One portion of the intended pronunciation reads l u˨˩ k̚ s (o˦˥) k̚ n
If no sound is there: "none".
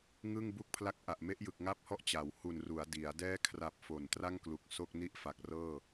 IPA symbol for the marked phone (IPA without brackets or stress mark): o˥˩